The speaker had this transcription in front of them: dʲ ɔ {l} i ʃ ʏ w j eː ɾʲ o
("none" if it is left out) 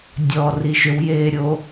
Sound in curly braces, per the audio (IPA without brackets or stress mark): r